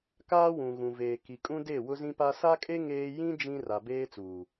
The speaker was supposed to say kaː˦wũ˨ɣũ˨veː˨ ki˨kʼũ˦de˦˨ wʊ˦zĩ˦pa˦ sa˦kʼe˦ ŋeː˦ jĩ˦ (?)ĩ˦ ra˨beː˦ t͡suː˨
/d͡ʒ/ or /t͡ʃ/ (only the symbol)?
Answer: d͡ʒ